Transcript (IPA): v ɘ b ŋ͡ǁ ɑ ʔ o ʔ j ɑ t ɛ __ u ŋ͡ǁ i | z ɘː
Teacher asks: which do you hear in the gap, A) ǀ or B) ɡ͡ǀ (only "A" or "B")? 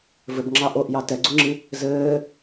B